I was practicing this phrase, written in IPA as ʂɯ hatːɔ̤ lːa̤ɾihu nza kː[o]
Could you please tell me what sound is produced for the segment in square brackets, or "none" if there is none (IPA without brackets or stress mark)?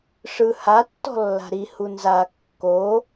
o